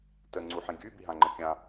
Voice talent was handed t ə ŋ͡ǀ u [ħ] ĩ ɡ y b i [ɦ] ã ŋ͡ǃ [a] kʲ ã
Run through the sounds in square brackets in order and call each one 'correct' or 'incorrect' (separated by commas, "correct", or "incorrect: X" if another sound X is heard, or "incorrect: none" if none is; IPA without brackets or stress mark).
correct, correct, incorrect: ə